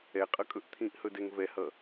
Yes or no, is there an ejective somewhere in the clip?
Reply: yes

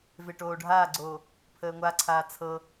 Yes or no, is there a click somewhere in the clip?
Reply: yes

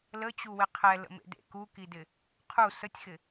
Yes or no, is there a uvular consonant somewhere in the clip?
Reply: yes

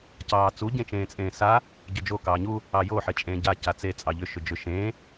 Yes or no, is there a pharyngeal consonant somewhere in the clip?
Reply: yes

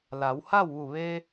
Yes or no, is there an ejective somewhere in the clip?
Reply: no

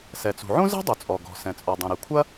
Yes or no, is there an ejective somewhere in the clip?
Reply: yes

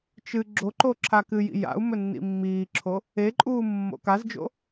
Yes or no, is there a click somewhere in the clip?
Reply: yes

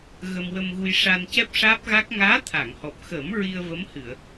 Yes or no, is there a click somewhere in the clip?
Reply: no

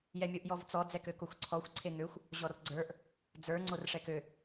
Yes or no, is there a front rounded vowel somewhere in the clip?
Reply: yes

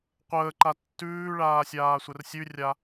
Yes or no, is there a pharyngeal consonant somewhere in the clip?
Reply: no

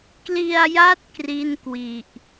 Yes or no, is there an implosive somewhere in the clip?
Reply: no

